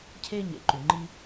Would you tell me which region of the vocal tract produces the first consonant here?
palate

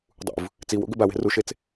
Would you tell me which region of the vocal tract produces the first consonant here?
tongue tip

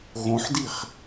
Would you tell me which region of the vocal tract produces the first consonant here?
velum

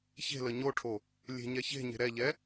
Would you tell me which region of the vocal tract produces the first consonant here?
palate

